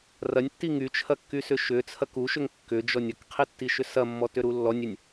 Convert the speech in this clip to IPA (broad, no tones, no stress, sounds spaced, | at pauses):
r ɐ nʲ tː i ŋ y t͡ʃʰ ɐ kː y s ʏ ʃ ʏ t͡sʰ ɐ k u ʃ ʏ ŋ kː ʏ d͡ʒ ɔ nʲ ɐ k qʰ i tː i ʃ ʏ s ɐ mː ɔ t ʏ ɾ u lː ɔ nʲ ʏ nʲ